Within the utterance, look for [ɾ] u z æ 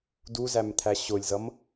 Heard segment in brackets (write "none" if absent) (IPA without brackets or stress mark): d